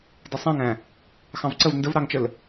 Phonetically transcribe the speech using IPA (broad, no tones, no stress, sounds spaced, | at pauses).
d ɪ sˤ æ̃ ŋ æ̃ | x ɑ̃ v ǀ ə v n d ə v ɾ ɑ ŋ t͡ʃ ə l